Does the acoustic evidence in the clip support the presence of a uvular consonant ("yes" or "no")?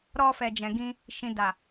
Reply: no